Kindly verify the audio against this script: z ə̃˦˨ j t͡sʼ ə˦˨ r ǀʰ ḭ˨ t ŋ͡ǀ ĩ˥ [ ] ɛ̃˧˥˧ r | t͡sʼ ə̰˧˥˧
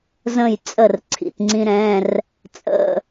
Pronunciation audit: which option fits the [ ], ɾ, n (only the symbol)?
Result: ɾ